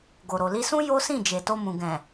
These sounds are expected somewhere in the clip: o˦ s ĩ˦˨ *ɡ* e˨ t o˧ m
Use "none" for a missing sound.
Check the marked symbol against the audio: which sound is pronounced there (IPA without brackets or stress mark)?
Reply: d͡ʒ